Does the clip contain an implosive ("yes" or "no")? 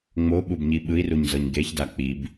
yes